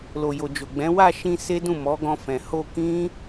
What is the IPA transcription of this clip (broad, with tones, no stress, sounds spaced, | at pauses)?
l o˨ j o˨ d͡ʒ o˨ ɡ͡b ɛ̃˨˦ w a˦˨ ʃ ĩ˧ s e˦ d ũ˦˨ m ɔ˨˦ ɡ ɔ̃˧ f ɛ̃˨ h o˧ k ĩ˦